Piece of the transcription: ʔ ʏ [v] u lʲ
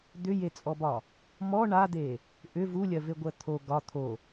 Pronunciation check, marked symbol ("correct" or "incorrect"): correct